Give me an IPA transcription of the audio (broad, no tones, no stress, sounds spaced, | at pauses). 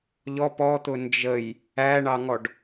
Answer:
ʎ ɔ p ɔ t̪ ʊ n d͡ʒ ə j | æ ɳ ɑ ŋ ɔ ɖ